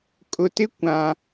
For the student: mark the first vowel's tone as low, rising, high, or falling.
low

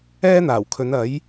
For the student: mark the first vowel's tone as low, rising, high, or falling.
high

